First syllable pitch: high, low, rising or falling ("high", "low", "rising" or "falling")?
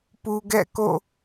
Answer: low